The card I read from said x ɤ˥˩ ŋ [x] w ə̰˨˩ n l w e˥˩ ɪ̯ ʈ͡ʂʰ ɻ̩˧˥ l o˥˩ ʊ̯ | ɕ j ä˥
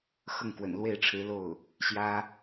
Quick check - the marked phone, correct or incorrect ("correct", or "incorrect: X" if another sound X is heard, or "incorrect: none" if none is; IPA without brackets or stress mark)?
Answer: incorrect: k